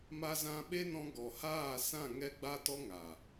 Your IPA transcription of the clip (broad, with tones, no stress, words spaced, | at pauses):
ma˧zã˧ɓe˦nɔ̃˧ ɡɔ˨haː˦˨sã˦˨ ŋɛ˧ɡ͡ba˧tɔ˧ ŋa˨